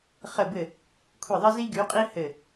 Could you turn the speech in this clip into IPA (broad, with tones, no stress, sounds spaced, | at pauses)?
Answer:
χ ə˧˩ b ɘ˧˩ | kʷʰ i˧˩ ðˤ ə˦ z i˦ ɡ y˨˦ qʼ i˦ h ɘ˧˩